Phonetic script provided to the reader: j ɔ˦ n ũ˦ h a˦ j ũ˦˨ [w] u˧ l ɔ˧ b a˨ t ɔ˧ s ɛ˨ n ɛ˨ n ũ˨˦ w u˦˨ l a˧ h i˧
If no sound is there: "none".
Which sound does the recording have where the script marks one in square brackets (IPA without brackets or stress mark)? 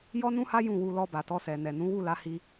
w